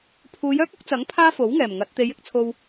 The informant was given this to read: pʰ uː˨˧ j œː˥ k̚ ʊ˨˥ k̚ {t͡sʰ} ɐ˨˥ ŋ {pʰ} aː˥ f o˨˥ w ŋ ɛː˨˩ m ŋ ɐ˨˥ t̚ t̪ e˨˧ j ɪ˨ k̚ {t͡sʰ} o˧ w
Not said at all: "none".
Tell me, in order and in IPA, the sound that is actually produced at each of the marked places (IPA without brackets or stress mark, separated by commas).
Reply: t͡s, pʰ, t͡sʰ